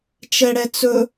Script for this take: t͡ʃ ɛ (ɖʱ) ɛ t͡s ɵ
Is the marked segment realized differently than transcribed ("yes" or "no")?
yes